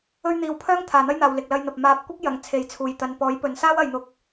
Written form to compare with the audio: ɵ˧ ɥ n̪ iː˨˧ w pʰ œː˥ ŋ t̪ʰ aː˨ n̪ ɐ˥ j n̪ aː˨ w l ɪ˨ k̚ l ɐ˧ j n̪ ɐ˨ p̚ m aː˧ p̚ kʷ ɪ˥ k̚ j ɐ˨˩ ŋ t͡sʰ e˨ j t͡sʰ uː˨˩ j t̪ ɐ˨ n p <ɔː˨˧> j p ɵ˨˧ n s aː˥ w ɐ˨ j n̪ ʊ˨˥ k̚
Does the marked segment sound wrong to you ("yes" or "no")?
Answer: yes